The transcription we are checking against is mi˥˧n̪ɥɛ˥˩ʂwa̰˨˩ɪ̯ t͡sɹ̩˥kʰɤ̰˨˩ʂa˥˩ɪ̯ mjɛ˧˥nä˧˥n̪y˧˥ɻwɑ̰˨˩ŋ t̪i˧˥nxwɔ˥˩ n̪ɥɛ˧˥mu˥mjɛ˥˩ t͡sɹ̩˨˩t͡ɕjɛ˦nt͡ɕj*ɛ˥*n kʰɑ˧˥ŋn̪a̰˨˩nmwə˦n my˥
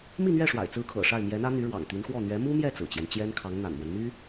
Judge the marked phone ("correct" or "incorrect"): correct